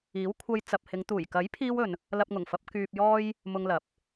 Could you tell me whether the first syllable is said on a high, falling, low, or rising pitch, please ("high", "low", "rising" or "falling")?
rising